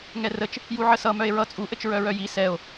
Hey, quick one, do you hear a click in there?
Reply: no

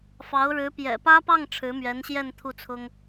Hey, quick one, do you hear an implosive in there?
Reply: no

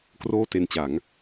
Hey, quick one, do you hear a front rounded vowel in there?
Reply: no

